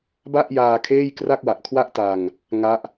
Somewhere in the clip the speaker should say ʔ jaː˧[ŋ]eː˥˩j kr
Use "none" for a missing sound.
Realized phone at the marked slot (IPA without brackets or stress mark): kʰ